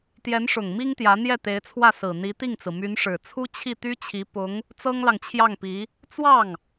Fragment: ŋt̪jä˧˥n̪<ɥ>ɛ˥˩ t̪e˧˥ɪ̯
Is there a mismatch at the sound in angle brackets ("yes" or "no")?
yes